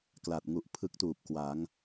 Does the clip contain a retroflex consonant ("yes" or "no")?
no